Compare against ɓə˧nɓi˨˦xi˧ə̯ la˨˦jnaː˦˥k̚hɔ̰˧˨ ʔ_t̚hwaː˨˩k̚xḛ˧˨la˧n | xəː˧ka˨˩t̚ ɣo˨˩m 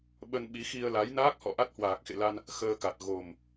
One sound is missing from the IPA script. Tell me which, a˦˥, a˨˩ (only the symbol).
a˦˥